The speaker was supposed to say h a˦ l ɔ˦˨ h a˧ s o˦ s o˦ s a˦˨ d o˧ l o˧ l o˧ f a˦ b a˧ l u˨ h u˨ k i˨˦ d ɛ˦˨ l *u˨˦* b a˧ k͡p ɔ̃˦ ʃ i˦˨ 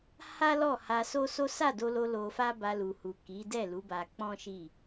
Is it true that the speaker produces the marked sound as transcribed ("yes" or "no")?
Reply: yes